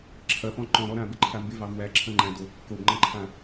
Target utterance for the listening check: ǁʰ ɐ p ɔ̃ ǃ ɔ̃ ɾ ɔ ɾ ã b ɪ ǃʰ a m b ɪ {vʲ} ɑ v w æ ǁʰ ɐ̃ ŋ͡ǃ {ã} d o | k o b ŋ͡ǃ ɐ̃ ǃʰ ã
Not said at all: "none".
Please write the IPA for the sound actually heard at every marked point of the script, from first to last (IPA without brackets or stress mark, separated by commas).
v, æ̃